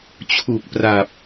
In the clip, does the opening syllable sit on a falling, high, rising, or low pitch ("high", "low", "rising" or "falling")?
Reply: low